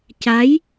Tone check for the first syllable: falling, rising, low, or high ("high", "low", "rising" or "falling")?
rising